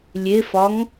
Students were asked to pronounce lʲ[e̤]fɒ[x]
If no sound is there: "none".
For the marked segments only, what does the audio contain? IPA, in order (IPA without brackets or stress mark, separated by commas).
e, ŋ